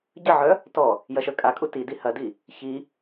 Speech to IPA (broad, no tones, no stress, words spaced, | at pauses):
ɟəʕœ | tɔ | jɐʃœkʼakʼu tidi hɐdi | çi